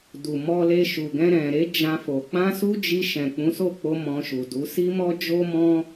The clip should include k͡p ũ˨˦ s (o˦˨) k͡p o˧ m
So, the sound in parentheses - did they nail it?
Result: yes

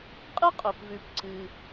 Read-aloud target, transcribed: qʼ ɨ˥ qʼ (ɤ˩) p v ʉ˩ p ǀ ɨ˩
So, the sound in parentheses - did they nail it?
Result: no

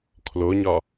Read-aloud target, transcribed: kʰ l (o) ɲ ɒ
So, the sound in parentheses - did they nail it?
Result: yes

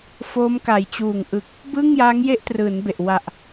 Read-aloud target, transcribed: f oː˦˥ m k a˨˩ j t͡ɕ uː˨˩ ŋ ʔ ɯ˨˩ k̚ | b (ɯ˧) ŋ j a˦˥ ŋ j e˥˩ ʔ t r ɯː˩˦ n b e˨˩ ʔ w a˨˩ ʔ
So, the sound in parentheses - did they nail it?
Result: no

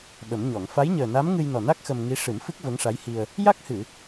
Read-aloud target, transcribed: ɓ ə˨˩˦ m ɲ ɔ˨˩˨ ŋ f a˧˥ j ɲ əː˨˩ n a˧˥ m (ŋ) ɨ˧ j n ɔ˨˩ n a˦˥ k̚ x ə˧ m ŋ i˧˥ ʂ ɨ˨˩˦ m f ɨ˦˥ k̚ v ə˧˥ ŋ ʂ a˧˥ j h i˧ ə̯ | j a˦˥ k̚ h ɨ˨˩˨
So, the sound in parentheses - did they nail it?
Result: yes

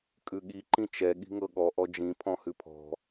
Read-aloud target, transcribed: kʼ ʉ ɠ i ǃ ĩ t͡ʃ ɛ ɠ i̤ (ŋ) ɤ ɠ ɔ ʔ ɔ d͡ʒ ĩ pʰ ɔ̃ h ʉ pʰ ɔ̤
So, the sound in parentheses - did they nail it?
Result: yes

